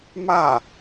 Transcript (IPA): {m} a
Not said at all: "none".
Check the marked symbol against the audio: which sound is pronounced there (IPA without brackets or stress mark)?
m